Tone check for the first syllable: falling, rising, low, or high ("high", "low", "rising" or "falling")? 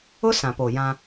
high